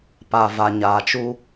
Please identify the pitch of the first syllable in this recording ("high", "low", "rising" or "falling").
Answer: low